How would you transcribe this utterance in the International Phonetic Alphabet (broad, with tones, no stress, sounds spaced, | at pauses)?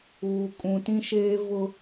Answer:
uː˨ kʼ ũ˨ t ĩ˦ ʃ eː˦ v ʊ˦